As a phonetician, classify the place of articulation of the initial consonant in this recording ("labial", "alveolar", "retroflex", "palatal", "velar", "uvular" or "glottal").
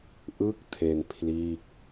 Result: glottal